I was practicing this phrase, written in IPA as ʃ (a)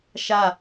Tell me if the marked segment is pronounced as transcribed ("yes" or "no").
yes